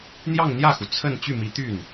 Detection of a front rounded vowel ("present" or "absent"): present